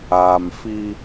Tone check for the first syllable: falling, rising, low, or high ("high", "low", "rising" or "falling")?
low